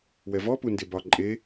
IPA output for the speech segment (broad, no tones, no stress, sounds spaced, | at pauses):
w ɛ v ɔ p u n d e b ɒ ǃʼ e